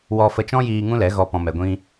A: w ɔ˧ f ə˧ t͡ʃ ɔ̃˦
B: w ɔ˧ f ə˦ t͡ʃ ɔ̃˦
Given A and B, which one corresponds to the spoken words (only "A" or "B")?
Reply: A